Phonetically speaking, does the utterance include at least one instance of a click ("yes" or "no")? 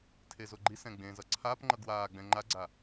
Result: yes